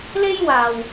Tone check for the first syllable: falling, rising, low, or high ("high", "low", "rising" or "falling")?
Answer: high